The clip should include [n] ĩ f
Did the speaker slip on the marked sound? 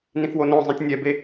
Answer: no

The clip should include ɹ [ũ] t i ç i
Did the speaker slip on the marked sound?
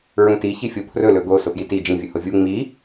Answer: no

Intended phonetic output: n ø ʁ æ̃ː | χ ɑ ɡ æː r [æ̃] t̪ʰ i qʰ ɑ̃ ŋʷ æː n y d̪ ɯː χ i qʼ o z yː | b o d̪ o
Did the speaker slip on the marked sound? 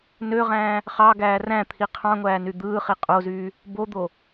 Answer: no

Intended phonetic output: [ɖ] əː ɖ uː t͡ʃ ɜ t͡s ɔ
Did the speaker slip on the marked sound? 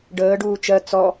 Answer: no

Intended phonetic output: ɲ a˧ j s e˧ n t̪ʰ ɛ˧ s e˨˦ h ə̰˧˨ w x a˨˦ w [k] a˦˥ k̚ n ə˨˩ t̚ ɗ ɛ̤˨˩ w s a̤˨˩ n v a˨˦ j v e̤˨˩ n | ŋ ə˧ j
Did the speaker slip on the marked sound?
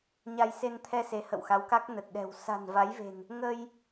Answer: no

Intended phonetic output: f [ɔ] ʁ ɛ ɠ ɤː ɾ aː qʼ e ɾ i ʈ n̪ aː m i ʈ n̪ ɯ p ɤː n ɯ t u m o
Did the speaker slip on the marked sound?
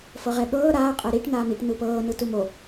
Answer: yes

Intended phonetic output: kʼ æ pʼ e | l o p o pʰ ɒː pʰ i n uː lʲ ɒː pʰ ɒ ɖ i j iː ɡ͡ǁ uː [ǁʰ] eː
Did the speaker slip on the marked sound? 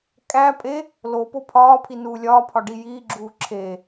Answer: no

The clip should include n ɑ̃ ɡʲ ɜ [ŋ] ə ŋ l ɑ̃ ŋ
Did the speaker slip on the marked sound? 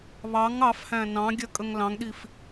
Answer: yes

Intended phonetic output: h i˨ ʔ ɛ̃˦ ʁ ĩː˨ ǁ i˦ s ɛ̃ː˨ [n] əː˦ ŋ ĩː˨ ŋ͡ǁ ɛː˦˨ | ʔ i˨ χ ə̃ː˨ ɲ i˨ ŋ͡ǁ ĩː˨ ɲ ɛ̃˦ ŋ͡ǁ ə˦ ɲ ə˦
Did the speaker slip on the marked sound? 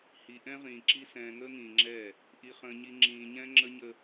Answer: yes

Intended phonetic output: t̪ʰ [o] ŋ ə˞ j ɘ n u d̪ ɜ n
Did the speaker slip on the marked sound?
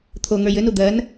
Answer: no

